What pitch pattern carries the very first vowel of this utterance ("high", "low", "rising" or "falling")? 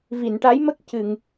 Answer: low